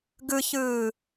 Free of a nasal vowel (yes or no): yes